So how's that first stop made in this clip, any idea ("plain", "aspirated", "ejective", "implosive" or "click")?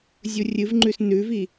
click